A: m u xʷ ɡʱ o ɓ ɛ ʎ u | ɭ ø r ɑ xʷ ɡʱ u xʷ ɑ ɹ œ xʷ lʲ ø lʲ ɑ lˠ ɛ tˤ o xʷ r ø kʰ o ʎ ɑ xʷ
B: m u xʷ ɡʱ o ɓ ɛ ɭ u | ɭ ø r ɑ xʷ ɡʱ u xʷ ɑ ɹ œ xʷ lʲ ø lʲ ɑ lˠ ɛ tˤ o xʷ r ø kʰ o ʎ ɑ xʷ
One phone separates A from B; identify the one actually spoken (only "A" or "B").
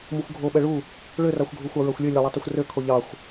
B